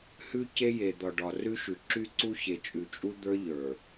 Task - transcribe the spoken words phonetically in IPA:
h ʉ˦ c e˦ j e˨ d̪ ɒ˨ ɖ ɒ˨ r ʉ˦ ʃ ʉ˨ ǁ y˦ ǀ u˦ ç e˨ t͡ʃʼ ʉ˨ t͡ʃʼ u˦ d̪ ə˞˦ ʎ ə˞˨

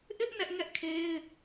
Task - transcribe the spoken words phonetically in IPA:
ʔ ɪ˦ ʔ n ɛ˦ ʔ ŋ ɛ˦ ʔ kʰ e˦ ɪ̯

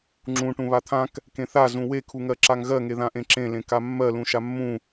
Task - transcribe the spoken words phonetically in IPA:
ŋ͡ǁ ũ ʈ ũ β a t̪ʰ ã k | k ẽ θ a z ũ w e kʰ u ŋ ɜ ǁ a ŋ ɣ ɜ ŋ e ð ã ʔ ẽ ǁ ẽ l ẽ k a mː ɜ l ũ ʃ a mː ũ

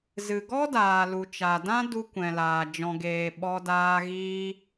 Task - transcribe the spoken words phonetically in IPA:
z ɨ˨ ɡ ɔ˦ d aː˨ l u˨ t͡ʃ a˨ d ã˦ d u˧ kʷ ɛ̃˨ l aː˨ d͡ʒ ɔ̃˨ ɡ eː˨ ɓ ɔ˧ d aː˧ ɣ iː˧

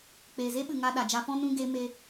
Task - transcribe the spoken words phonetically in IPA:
k͡p eː˨ z e˦ ɓ ɨ˨ ŋ a˧ ɗ a˨ d͡ʒ a˧ f ɔ̃˦ n ũ˧ ɡ e˧ m e˧

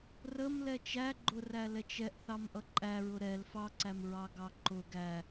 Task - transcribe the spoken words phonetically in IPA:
r ə m l ɛ t͡ʃ æ ɡ͡ǃ ʊ r æ l ɛ t͡ʃ ɛ ʔ θ ɑ m ʔ ʌ ǃʼ æ ɹ ʊ ɾ ɛ l f ɑ ǀ æ m ɹ ɑ ɡ ɑ ǃ ʊ ɡ æ

